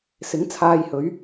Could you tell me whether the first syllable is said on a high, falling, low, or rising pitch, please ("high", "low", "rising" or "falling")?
rising